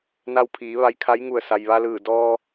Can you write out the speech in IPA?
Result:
n a˧ w pʰ iː˩˧ ʋ a˧ j kʰ a˧˥ j ŋ u˧˩ ə̯ s a˩ j ʋ a˧ l ɯː˧˩ d ɔː˧

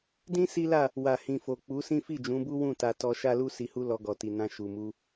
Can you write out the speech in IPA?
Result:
d ĩ˦ s i˦ l a˦˨ | w a˨ h ĩ˨ f o˨ k͡p u˨˦ s ĩ˦ f i˦˨ d͡ʒ ũ˨˦ b u˦ w ũ˦˨ t a˧ t ɔ˧ ʃ a˦ l u˦ s i˧ h u˦ l ɔ˧ ɡ ɔ˨ t i˨ n ã˧ ʃ u˨ m u˧

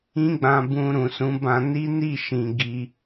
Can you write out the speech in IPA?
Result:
ĩ˦ ɡ͡b ã˧ b ũ˧ ɾ ũ˨ s ũ˨˦ b ã˧ n i˦ n i˦˨ ʃ ĩ˨ ɡ i˧

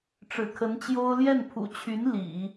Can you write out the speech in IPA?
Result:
ʈ͡ʂ ɻ̩˨˩ kʰ ə˧˥ n t͡ɕ j o˥ ʊ̯ l j ɛ˥˩ n pʰ ṵ˨˩ t͡ɕʰ y˧˥ n l ḭ˨˩˦

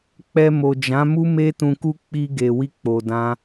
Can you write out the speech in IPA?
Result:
k͡p ɛ˧ m o˨ d͡ʒ ã˨˦ m u˦ m e˦ t ũ˧ k u˦ k͡p i˧ ɡ e˨ w i˧ k͡p o˨ d ã˧

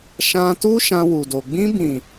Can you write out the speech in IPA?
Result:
ʃ ã˧ t u˦ ʃ ã˧ w u˨ d o˨ ɡ͡b ĩ˧ b ĩ˨

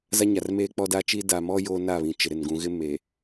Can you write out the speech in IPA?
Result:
z a˦ ɲ a˨ r m eː˦ k͡p ɔ˦ d a˦ t͡ʃ iː˦ d a˨ m ɔ˦ j o˦ n a˦˨ β ĩ˨ t͡ʃ ɪ˨ ɾ ɪ˨ n ɡ ũ˨ ɣ ɪ˦ m e˨

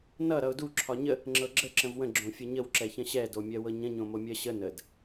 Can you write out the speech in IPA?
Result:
n ʌ ɾ ʌ ʊ̯ d u ǁʰ ɒ ɲ ə | ŋ͡ǁ ɤ ɡ͡ǁ ə ǁ ə̃ v w ə̃ ɡ͡ǁ õ fʲ ʌ ɲ ə w ǁ ɛ ç ə̃ ɕ ɛ d o mʲ ɜ w ɤ ɲ ə̃ ɲ õ m o mʲ ɜ ɕ ə n ə d

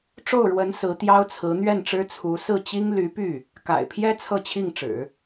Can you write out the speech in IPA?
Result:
ʈ͡ʂ o˥˩ ʊ̯ ɻ w ə˧˥ n s ɹ̩˧˥ t̪ j ɑ˥ ʊ̯ t͡sʰ ɹ̩˧˥ n̪ ɥ ɛ˥˩ n ʈ͡ʂ ɻ̩˥ t͡sʰ u˧˥ s ɹ̩˥˩ t͡ɕ i˥ ŋ l y˧˥ p y˥˩ | k a̰˨˩ ɪ̯ pʰ j ɛ˥ t͡sʰ ɤ˥˧ t͡ɕʰ i˥˩ ŋ ʈ͡ʂ ɻ̩˨˩˦

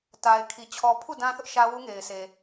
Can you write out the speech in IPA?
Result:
t a˨ ɪ̯ kʰ i˨ t͡ɕʰ ɔ˨ pʰ u˦˨ d ã˦ θ ʊ˦ ʔ ʃ ä˦ w u˦ ŋ e˨ ɪ̯ sʰ e˨

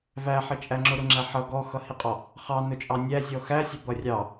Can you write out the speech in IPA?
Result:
v æ ħ ə t͡ʃʼ æ ŋ͡ǁ ʊ ɾ ʊ ŋ͡ǁ æ ħ ʌ ɡ ɔ x ʌ h i qʼ ɔ | χ ɑ n ʊ t͡ʃʼ ɑ nʲ æ zʲ ɔ x æ sʲ ə b ʌ rʲ ɑ

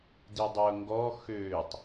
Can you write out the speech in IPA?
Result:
d i dˤ ʊː ŋ ɡ ɔ x øː tˤ

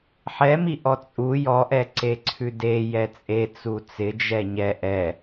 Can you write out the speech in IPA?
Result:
ħ ɛ m i ʔ ɔ t͡sʼ u j ɔ ʔ ɛ ǀ e ǀʰ ʉ d e j ɛ t͡sʼ e t͡s u t͡s ɪ d͡ʒ ɛ ɲ ɛ ʔ ɛ

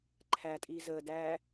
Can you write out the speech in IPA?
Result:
ǃʰ æ tʼ iː z əː d æː

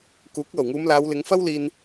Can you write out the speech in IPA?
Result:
k uː˨˥ k̚ l o˨˩ w ŋ uː˨˧ m l aː˨˧ w l ɪ˨˧ ŋ f ɐ˥ w l iː˧ n

